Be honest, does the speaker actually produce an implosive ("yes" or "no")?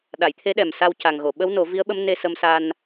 yes